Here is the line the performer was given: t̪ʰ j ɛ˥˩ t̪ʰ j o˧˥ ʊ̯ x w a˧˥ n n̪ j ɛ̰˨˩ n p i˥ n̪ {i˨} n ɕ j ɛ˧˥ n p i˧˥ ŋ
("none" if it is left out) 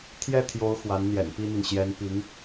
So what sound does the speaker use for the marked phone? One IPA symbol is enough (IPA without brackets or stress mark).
i˨